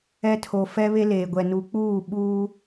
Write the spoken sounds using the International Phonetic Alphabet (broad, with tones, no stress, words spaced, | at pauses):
ɛ˦tʰo˨ fɛ˦ βe˦leː˨ɡʷɛ˨nu˨˦ k͡puː˦˨ ɓuː˦